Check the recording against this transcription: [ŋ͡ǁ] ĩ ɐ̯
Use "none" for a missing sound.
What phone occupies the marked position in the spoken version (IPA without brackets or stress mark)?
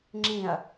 ŋ͡ǁ